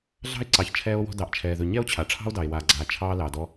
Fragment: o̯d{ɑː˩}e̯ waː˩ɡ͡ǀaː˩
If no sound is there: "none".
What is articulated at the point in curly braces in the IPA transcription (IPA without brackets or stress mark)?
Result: ɑ˩